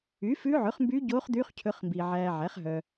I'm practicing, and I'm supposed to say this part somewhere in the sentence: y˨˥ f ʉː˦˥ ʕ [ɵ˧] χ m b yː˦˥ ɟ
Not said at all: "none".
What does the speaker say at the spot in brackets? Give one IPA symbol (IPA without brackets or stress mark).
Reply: ɵ˨˥